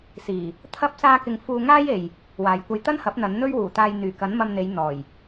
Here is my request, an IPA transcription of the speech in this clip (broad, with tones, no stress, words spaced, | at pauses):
siː˨˩ | t̪ʰɐ˥p̚saː˥kɪ˧ŋ fuː˧ŋaː˥j e˨j | waː˨jkʷɐ˧j t̪ɐ˥nhɐ˨˥p̚n̪ɐ˨˧n n̪ɵ˥ɥwuː˨˩t̪aː˧j n̪yː˨˩kɐ˨˥n mɐ˧mn̪e˨˧j n̪ɔː˨˩j